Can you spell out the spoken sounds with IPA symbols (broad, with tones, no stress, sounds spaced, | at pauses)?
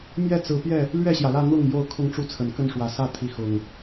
m j ɛ˥˨ t͡s ɹ̩˨˦ p j ɛ˥˨ | l ɥ ɛ˥˨ ɕ j ä˩ l ä˥˨ n̪ ʊ˥˨ ŋ j o˥˨ ʊ̯ kʰ ʊ˥˨ ŋ ʈ͡ʂ u˦ t͡sʰ ə˨˩ n k ə˥˨ n ʂ w ä˨˩ s ä˥˨ t̪ʰ i˨˦ x ʊ˨˩ ŋ